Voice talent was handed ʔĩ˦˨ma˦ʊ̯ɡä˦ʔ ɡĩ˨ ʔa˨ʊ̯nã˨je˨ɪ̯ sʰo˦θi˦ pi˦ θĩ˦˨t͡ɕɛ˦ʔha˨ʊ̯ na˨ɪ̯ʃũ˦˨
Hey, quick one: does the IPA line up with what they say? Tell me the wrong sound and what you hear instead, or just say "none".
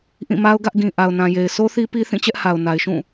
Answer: none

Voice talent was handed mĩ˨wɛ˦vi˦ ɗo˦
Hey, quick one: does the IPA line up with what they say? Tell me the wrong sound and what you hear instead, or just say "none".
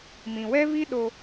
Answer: none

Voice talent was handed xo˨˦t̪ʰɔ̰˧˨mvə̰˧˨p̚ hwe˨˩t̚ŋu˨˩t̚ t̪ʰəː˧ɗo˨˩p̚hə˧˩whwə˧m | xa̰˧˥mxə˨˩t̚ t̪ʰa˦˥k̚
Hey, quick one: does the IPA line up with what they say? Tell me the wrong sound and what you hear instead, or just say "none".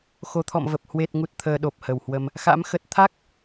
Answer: ə̰˧˨ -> ə˨˩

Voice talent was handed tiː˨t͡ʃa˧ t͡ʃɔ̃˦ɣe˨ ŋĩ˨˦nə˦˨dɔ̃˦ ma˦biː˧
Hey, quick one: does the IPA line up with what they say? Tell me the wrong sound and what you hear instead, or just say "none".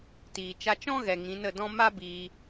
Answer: e˨ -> ɛ˨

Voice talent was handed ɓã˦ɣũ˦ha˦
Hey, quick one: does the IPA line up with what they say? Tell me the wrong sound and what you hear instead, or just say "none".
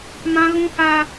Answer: ɓ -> m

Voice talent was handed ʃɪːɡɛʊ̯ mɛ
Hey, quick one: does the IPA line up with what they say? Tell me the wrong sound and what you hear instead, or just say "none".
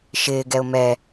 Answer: none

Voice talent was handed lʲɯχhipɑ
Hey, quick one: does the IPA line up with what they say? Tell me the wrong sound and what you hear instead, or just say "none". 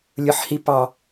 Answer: χ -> ħ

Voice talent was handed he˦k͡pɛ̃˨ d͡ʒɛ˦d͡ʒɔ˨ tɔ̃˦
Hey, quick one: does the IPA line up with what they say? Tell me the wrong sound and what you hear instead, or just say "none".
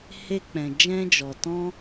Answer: ɛ˦ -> ɛ̃˦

